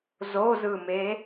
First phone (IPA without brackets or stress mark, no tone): z